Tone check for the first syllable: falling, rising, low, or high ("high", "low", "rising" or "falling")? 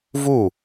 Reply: falling